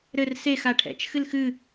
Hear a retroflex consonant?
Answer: yes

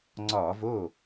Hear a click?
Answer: yes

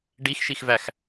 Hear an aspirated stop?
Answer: no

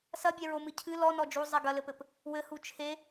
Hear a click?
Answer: no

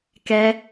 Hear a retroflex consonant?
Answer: no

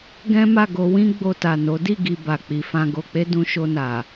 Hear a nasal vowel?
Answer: yes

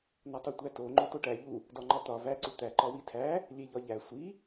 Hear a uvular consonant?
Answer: no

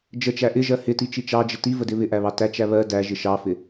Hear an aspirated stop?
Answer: no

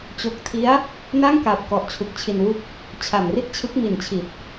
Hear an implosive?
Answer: no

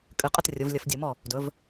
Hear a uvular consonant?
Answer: yes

